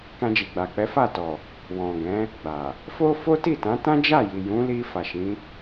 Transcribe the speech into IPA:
k ã˧ d͡ʒ i˨ ɡ͡b a˨ k͡p ɛ˨˦ f a˦˨ t ɔ˨ | w ɔ̃˨ ɡ ɛ̃˨˦ | ɡ͡b a˨ | f o˦ f o˦ t i˦˨ t ã˨˦ t ã˦ d͡ʒ a˦˨ j i˨ j ũ˨˦ l i˧ f a˨ ʃ ĩ˨˦

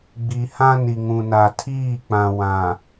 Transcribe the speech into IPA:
ɡ͡b i˨ h ã˦ n i˨ ŋ ũ˨ n a˨ tʰ iː˦˨ k͡p ã˨ w ã˨

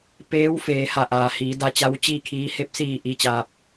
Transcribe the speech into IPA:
p eː˧˥ w f eː˩˧ h a˧˩ ʔ aː˩ h iː˩˧ d a˧ t͡ɕ a˧˥ w t͡ɕ iː˥˨ kʰ iː˧˥ h e˧ p̚ s iː˧˩ ʔ i˧˥ t͡ɕ aː˧ p̚

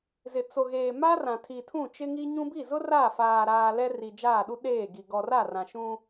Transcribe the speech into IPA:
z ɪ˨ t͡s o˨ ɣ eː˨ m a˦ r ã˨ tʰ i˨ tʰ ũ˦˨ t͡ʃ ɪ˦ ŋ i˦ ɲ ũ˦ b i˦˨ z ʊ˦ r a˦˨ f aː˨ ɾ aː˨ l ɛ˦ r i˨ d͡ʒ aː˦˨ ɗ u˦ ɗ eː˦˨ ɡ i˨ ɡ ɔ˨ r a˦˨ r ã˨ ʃ ũ˦

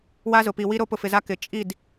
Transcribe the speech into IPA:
w a˦ z ʊ˨ p i˨ w i˦ ɾ o˦ p ʊ˨ f ɪ˨ z a˦ k ɪ˨ t͡ʃʼ i˦˨ d

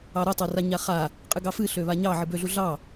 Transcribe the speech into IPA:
ɑ ɾ o tˤ o r a ɲ a χ a | qʼ ɨ ɡ ɑ f ɨ ɬ ø β a ɲ ɑ ʕ ɨ b ø ɮ u ɮ ɑ

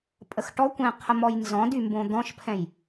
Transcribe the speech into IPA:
pʼ ə x ʈ ɔ kʷ ɛ̃ qʰ ə m ɔ j n z ɔ̃ d y m b õ d̪ ɔ̃ ʃ pʰ ɛ̃ j

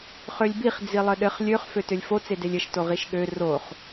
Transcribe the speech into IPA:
χ ø lʲ b i χ d͡z i lˠ ɘ ɗ ɘ χ lʲ ø χ f ø t ø lʲ f o t͡s e d e lʲ ɘ ʃ t o ʁ i ʃ ɠ ø r o χ

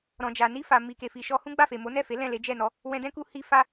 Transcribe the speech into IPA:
ɾ ɔ̃˨ d͡ʒ a˨ n i˧ f a˨ m i˨ k e˨ f i˨ ʃ ɔ˧ h ũ˦ ɡ͡b a˦˨ f e˨ m o˨˦ n ɛ˦˨ f e˨˦ l ɛ̃˦˨ l e˨˦ d͡ʒ ɛ˦˨ n ɔ˨˦ | w ɛ̃˧ d ɛ̃˦ k u˧ h i˧ f a˧

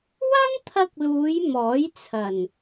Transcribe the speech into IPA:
w ɐ˥ n t̪ʰ ɐ˧ k̚ l uː˨˧ j m ɔː˨˥ j t͡sʰ ɐ˨˩ n

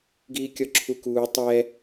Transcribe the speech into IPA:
ɡ iː kʲ ɔ ǁʰ u k uː tˤ ɛ

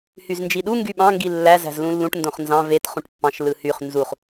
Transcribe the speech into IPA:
h y z n d͡ʒ i ɗ u ŋ ɡ y ɓ ɑ̃ ŋ ɡ i lː æ z æ̤ z l ũ lː ũ ʈ n d õ χ n z ɑ̃ v e t χ ũ ʈ pː ɑ̃ ʃ l ɯ h y χ n z u χ

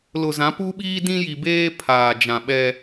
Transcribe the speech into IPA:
l ʊ˨ z ã˨˦ p u˦ ɓ iː˦ d ĩ˦ j i˨ b eː˦ pʰ aː˨ d͡ʒ ã˨ ɓ ɛ˦

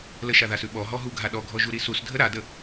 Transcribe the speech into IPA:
l ə ʃ a ð a s ʉ ɓ ɔ ɦ ɔ ɦ u ɡʱ a ɗ ɔ ɡʱ ɔ ʒ u ɾ i s u s dʱ ə ɾ a d ə

